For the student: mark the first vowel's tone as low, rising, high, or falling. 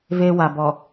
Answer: high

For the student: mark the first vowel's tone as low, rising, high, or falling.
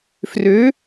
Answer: rising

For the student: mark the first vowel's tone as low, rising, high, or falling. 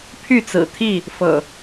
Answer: falling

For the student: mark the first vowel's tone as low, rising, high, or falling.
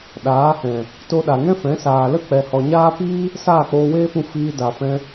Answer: rising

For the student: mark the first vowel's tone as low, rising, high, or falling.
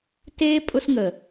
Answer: high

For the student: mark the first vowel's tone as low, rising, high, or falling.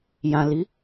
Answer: low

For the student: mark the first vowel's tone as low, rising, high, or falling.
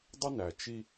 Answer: high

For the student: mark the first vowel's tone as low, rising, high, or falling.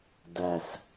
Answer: low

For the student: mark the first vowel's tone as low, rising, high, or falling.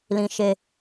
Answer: high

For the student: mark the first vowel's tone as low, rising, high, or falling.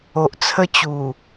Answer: low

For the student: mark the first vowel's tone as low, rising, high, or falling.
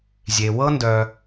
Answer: low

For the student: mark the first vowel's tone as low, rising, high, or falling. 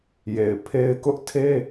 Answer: low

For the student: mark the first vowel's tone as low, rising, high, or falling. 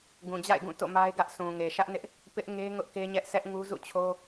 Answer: low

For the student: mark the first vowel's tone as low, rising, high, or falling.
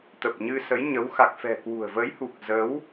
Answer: low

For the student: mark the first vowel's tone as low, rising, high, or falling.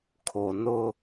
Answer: low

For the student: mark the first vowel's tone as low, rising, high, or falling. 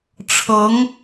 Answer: rising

